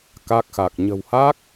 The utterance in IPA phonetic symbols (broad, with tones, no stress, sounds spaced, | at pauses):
k a˦˥ k̚ x a˨˩ k̚ ɲ ə̤˨˩ w h a˦˥ k̚